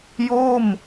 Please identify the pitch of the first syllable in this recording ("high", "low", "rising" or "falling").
falling